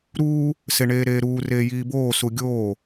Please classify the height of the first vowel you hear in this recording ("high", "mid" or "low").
high